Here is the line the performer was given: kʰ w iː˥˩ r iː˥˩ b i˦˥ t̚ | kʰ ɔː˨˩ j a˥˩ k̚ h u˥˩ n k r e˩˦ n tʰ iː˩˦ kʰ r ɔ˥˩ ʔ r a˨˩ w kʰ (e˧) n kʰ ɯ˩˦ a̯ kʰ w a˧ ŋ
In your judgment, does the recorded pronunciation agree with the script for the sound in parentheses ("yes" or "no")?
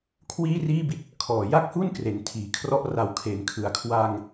no